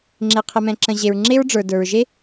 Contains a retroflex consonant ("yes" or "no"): yes